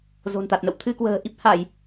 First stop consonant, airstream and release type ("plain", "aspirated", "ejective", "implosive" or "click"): plain